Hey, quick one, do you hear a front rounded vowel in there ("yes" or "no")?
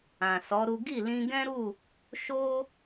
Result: no